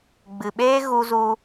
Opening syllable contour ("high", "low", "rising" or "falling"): low